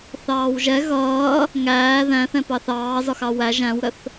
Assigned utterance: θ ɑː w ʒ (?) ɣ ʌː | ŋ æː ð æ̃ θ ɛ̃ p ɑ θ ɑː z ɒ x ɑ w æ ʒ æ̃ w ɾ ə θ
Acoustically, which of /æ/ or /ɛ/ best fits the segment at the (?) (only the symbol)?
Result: ɛ